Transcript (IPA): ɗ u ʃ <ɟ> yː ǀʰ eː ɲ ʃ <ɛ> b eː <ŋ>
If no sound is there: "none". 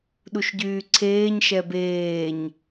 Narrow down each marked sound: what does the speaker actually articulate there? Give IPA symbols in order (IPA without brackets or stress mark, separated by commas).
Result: ɟ, ɛ, ɲ